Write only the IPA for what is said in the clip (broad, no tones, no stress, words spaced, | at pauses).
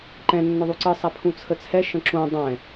ǃɛ̃ nːʏðˤuǀɨ sˤɛpʰũt͡sʰət͡sʰɛ ʃə̃ǁũ dˤɛ̃